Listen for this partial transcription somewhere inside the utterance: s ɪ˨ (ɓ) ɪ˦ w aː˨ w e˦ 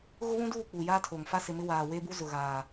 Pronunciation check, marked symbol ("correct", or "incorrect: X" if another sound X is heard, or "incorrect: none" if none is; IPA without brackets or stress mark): incorrect: m